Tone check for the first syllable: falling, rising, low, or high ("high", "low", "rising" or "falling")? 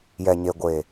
low